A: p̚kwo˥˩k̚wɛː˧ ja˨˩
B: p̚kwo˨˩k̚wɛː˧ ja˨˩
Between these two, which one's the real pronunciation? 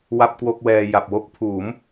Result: A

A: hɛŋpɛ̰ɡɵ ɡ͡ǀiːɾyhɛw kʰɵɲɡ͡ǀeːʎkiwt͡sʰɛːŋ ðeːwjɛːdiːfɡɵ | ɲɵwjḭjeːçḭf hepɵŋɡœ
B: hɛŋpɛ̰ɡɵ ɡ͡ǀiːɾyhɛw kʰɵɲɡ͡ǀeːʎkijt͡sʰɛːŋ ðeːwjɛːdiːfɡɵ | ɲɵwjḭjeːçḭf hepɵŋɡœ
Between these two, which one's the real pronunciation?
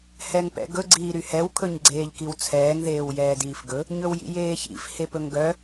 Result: A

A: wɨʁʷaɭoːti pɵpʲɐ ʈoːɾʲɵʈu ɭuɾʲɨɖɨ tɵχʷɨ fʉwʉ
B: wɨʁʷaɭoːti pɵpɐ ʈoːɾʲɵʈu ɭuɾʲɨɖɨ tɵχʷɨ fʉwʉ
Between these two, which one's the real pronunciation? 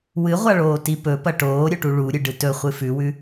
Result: B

